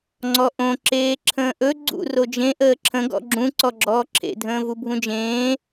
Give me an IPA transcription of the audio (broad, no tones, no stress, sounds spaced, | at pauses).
ŋ͡ǀ ɔ ʔ õ ǁ eː ǁʰ ə̃ː ʔ ɵ ɡ͡ǀ ṵ r o d͡ʒ ẽ ʔ əː ǁʰ ə̃ ɡ ɔ̰ ɡ͡ǁ ũ ǀ ɔ ɡ͡ǁ ɔː ǁʰ ḛ dʱ ə̃ː v u bʱ ũ d͡ʒ ẽː